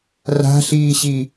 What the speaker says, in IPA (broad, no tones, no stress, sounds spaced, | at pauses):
r a̤ ɬ iː ɕ i